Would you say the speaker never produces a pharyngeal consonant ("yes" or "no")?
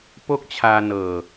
yes